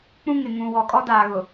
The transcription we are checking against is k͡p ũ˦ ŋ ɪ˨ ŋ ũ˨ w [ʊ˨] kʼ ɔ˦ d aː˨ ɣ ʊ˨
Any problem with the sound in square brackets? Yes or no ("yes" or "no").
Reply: yes